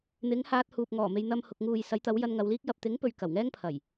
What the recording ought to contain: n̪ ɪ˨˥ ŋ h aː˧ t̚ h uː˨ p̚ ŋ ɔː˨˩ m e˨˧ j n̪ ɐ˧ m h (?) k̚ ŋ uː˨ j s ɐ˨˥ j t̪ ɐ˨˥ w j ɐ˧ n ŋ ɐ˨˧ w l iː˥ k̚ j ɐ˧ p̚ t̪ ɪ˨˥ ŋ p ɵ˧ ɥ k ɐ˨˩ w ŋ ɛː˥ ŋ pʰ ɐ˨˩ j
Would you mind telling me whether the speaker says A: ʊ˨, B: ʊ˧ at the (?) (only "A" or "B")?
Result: A